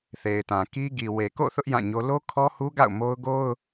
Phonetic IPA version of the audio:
θ e˨ ɪ̯ t ã˨ k i˦ ɡ i˨ w e˨ k o̰˦˨ θ ʊ˦ ʔ j ã˦˨ ɲ o˦ l o˦ kʰ ɔ˦ h u˦ ɡ a̰˦˨ ʊ̯ m o˦ ʊ̯ ɡ o˦ ʊ̯

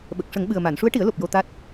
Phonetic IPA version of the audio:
ɓ ə˨˩ k̚ ʂ ə˨˩˦ ŋ ɓ ɨ˨˩ ə̯ m a˨˩˨ n ʂ u˧˥ ə̯ ʈ i˨˩˦ ə̯ l o˨˩ p̚ j o˧ t̪ a˦˥ t̚

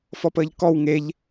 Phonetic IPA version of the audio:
f ɔ p əː ʎ k ɔ w ŋ e ʎ

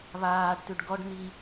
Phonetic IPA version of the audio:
β aː ɖ t ʉ ɖ ɡ ɔ ɖ n̪ i

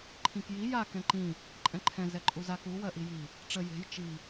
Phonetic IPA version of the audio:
ǃʰ ĩ k j i j a k ɛ̃ ǃ ĩ | ǃʼ ɛ̃ ǃʰ ɛ̃ z ɛ ǃʼ u z a k u w ɜ ʔ i j i | ʈ͡ʂ ə j e̤ j t͡ʃ i

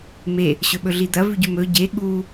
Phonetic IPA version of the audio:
m e | ɕ ɵ ɓ ɵ ɮ i d̪ ɐ v ʉ ɟ ʉ m ɵ ɟ e ɠ u

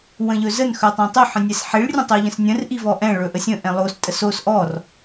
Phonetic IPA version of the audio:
w ə̃ ʎ ɵ z ə n x œ tˤ ɛ̃ tˤ ɵ ħ ə̃ nʲ ɛ s ħ i ɭ rʲ ə̃ tˤ o ʎ ə̃ s nʲ ə̃ r ʔ i v ɔ ʔ ɛ̃ ɭ ɵ ʔ ə sʲ ə̃ ʔ ɛ̃ lˠ o s tʼ ə s o s ʔ ɔ r

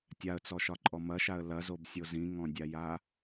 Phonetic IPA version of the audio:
tʲ a ə̯ t͡s ɔ ʃ ɒ ǃʼ ɔ m ɐ ʃ a ə̯ l ɐ z o b sʲ o z ĩ ŋ ɔ̃ dʲ a j a

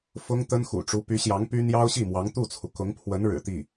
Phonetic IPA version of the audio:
f ʊ˥ ŋ t̪ ə˥ n x ṵ˨˩ ʈ͡ʂ u˧˥ p y˧˥ ɕ j ɑ˧˥ ŋ p y˥ n̪ j ɑ˥ ʊ̯ ɕ i˥˩ m w ɑ˧˥ ŋ t̪ u˥˩ t͡sʰ u˩ k ʊ˧˥ ŋ pʰ w ə˧˥ n ɻ ɻ̩˨˩ t̪ i˥˩

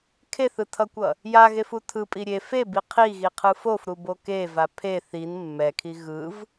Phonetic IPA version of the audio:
kʰ e θ ɯ tʰ ʌ kʷ ʌ | j a ɣ e f u tʰ ɯ pʼ i ɾʲ e f e b i qʰ i ɣ i qʰ ɯ f o f ɾ u b o k e v a pʰ e θ i n mː ɛ kʰ i ɣ ɯ v

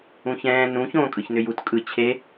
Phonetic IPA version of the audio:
ũ ç ɛ̃ː n ũ ç õː kʼ ɯ ç n ʏ j u t kʼ ɯ t͡ɕʰ e

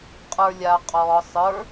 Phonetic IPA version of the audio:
qʼ ə˞ lʲ a qʼ ɔ sˤ ə˞

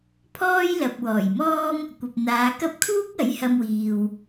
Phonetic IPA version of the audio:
pʰ ɔː˥ j l ɐ˨ p̚ w ɔː˨˩ j m ɔː˥ m | kʷ ɐ˨ p̚ n̪ aː˨˧ k ɐ˥ p̚ kʰ uː˥ k̚ ɐ˨˥ j h ɐ˧ m w iː˨ w

